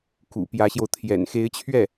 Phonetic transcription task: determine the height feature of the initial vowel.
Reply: high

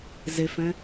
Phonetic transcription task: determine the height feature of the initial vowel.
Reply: mid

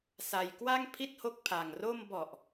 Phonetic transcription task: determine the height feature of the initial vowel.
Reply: low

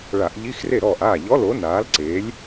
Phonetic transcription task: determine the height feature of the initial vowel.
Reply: low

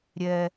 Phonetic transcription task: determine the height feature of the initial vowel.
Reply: mid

